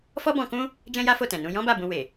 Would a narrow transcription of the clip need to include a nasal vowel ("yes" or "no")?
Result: yes